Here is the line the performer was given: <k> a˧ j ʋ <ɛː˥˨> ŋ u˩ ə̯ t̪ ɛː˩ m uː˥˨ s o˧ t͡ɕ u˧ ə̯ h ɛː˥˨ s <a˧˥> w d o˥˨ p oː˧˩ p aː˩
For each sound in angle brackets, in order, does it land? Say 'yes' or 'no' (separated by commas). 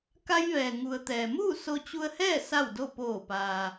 yes, no, no